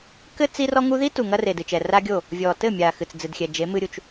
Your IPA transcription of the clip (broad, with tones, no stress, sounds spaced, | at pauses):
k ɘ˦ t͡s i˦ r ɔ˦ ŋ u˦ ð i˦ t u˨ ŋ ɐ˧ r e˨ d ɨ˨ t͡ʃ ɛ˨ r a˦ ɡʲ o˦˨ | vʲ ɔ˨ t ɘ˦˨ mʲ a˨ x ɨ˨ t͡s d͡z ɨ˨ d xʲ ɛ˨ d͡ʒ e˨˦ m ɨ˧ ɾʲ u˨ t͡ʃ